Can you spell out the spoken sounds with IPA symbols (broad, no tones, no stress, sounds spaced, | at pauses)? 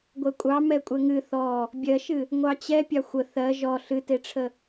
ɡʷ ɛ kʷʼ ɑ m ɛ kʷʼ ɛ ŋ ɨ θ ɔ | bʲ ɜ ʃ ɨ | ŋʷ ɑ t͡ɕ ɛ pʲ ɑ xʷ ə θ ɜ ʒ ɔ ɬ ɨ t e ʈ͡ʂʰ ə